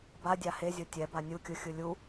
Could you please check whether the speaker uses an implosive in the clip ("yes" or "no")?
no